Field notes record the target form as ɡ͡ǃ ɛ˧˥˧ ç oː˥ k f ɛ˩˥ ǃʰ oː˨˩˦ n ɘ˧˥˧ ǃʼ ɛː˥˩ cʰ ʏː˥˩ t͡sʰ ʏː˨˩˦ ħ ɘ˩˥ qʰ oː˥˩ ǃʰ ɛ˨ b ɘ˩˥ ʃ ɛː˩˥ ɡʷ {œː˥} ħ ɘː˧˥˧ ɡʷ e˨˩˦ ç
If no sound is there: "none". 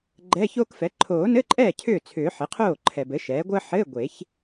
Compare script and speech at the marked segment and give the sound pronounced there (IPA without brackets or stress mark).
əː˥